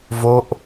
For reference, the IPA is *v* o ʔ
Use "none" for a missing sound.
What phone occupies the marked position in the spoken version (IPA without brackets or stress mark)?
v